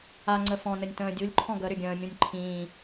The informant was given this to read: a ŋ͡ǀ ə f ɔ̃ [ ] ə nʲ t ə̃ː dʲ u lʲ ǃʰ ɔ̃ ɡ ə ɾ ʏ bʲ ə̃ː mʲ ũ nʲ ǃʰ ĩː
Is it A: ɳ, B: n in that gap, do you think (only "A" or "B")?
B